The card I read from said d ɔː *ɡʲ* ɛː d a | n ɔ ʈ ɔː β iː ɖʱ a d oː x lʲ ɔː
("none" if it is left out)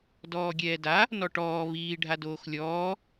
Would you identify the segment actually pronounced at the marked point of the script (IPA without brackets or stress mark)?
ɡʲ